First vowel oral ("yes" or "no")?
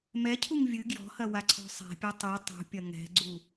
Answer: yes